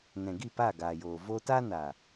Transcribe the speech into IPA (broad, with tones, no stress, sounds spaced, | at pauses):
n ɛ̃˨ ɡ i˦˨ p aː˦˨ ɡ aː˨ j oː˨ v oː˦ t a˦ n a˨